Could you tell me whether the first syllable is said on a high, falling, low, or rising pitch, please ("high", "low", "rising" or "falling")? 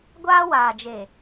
high